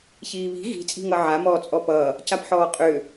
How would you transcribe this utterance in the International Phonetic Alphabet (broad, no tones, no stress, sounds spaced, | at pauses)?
ç iː β i̤ ɣ i̤ t͡sʼ i̤ ŋ ʌ ʕ a m ɔː t͡sʼ ɔ p ʌː | c a p ħ ɔː qʼ ʏː